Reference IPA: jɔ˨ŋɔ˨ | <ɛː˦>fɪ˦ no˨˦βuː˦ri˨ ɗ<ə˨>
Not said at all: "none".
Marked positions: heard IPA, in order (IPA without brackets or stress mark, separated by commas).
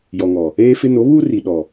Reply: eː˦, ɔ˨